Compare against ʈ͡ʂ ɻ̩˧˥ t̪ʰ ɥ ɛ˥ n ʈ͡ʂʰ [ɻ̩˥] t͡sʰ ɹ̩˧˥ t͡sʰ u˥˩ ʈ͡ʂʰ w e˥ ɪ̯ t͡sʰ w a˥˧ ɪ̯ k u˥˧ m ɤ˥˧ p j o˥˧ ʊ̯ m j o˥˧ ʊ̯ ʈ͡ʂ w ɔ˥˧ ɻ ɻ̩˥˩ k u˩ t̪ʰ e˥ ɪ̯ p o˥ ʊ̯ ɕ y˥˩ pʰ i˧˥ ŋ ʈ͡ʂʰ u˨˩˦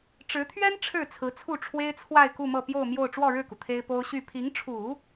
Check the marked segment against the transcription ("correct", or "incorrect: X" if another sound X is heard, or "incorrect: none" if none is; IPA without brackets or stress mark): incorrect: ɻ̩˥˩